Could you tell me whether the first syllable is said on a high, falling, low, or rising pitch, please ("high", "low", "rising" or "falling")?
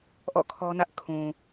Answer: falling